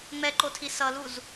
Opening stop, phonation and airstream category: click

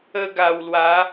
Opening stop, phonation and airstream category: plain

